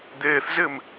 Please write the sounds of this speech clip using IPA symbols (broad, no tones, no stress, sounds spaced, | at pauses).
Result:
d̪ eː θ z ɪː m